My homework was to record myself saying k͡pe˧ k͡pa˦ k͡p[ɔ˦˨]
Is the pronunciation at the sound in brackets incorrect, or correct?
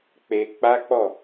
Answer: correct